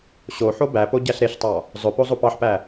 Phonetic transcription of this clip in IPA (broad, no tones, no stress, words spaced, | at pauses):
ɕoħo bæpo ɟæɬɾeɬtˤɑ | zˤɵpo zˤopɑħpæ